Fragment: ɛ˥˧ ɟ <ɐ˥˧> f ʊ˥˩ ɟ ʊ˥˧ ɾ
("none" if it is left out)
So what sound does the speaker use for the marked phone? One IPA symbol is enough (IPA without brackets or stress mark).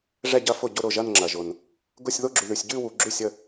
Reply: ɐ˥˧